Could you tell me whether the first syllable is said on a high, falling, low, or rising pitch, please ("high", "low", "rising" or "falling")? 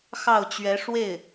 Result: falling